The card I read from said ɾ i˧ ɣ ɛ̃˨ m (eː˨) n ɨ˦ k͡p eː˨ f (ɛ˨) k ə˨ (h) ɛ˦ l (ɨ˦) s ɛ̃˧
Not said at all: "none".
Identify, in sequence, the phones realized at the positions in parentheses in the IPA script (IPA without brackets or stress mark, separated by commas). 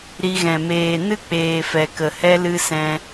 eː˨, ɛ˨, h, ɨ˦